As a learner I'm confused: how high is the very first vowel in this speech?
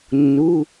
high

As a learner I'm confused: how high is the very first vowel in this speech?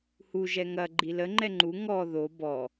high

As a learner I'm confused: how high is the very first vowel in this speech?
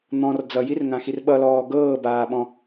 mid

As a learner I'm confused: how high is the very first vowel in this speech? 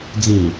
high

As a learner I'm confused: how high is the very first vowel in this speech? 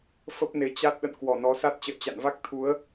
mid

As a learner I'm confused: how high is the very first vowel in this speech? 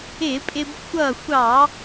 high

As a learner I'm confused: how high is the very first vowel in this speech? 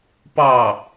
low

